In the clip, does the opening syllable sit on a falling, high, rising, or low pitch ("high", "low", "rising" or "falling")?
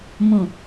low